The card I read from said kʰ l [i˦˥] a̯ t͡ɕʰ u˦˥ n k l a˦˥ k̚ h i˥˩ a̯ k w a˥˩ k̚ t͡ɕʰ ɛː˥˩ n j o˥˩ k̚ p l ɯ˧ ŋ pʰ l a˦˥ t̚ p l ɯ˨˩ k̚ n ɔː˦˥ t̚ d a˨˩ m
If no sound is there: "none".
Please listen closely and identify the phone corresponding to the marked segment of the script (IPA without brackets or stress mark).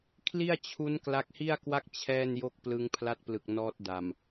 i˥˩